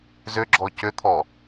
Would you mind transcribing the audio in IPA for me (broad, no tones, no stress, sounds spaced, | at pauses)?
z ʏ ɡ͡ǁ ɔ c ʏ t̪ʰ ɔ